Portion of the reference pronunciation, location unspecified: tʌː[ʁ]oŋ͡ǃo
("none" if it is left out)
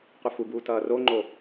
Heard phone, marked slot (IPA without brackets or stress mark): r